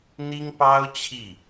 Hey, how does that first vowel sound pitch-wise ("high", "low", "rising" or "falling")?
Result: high